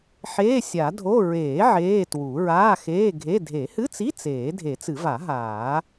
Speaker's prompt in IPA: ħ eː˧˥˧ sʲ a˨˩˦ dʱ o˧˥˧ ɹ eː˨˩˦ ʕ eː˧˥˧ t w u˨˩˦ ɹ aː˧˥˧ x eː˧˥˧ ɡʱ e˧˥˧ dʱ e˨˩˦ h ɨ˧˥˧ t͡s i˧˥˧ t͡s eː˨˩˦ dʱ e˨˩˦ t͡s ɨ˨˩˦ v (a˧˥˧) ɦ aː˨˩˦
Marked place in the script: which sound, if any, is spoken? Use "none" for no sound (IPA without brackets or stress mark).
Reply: a˨˩˦